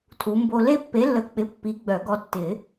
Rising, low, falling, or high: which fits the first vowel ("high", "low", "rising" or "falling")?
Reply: rising